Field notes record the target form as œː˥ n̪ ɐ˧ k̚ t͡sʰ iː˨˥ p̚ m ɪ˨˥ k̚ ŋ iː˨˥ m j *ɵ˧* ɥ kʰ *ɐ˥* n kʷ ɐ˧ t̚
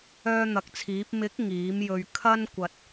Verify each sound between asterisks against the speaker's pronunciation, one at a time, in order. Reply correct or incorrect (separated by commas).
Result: correct, correct